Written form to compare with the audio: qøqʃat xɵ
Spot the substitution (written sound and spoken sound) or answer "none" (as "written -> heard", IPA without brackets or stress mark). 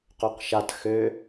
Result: ɵ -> ø